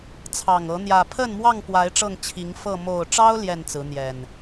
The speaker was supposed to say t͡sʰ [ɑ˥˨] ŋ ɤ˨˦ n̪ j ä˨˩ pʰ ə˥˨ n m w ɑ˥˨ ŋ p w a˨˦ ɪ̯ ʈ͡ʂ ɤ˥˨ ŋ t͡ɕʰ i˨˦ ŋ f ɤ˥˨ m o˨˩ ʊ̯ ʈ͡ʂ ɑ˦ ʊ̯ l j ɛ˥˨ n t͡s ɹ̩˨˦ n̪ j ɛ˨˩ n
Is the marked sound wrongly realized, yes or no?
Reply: yes